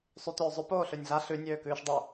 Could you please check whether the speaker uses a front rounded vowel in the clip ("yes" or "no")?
yes